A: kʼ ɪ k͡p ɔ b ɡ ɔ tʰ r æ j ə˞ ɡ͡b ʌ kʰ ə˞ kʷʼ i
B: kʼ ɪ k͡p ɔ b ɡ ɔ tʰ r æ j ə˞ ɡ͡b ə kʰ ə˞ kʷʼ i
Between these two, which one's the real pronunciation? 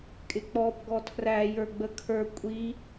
B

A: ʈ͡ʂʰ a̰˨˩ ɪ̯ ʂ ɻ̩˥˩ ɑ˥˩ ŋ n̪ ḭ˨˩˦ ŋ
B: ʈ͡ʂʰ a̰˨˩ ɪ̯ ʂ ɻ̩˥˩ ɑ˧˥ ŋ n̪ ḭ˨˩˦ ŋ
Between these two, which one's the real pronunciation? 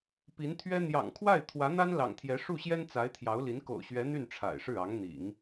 B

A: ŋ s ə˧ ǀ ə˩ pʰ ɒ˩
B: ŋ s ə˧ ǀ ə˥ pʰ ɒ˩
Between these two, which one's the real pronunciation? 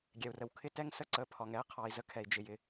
A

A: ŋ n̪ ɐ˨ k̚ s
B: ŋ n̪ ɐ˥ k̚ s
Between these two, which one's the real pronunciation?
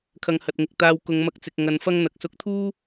A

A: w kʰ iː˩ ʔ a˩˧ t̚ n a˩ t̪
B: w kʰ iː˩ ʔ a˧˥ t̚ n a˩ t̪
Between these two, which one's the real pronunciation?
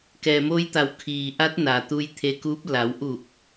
B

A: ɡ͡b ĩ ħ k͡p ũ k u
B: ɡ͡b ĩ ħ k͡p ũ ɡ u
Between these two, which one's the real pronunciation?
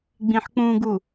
B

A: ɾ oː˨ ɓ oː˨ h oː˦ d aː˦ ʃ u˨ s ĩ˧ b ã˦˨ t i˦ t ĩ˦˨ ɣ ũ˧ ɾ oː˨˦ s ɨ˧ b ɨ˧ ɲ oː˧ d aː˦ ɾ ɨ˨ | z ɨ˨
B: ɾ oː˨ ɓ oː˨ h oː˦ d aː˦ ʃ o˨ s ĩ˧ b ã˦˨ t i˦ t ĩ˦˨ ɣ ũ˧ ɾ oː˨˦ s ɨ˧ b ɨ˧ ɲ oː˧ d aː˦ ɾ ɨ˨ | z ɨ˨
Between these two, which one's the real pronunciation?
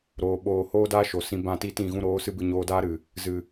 B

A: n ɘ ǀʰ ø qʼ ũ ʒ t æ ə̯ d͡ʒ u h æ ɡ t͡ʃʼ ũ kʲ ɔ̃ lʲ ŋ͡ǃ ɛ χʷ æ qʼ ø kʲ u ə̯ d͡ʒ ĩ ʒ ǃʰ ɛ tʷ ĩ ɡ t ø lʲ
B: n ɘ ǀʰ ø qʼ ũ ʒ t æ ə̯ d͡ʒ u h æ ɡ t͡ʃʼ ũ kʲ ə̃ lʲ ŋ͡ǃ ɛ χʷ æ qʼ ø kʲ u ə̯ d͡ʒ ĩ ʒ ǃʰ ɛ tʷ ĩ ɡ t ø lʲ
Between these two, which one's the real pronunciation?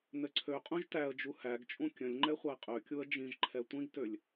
B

